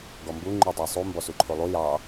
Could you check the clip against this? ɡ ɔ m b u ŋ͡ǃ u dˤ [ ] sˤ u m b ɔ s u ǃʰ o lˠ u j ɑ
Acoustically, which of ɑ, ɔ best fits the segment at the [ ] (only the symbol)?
ɑ